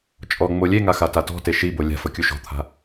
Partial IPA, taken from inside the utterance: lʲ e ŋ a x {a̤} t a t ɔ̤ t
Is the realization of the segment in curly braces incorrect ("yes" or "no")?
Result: yes